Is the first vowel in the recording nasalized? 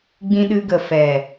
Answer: yes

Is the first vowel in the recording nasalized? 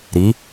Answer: no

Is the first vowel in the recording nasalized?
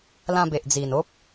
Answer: yes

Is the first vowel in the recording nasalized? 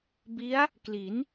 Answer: no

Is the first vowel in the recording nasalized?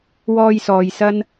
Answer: no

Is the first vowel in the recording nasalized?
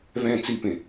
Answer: yes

